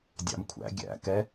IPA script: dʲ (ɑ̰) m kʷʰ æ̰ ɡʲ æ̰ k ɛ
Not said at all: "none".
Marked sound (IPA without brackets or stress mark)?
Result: ɑ̰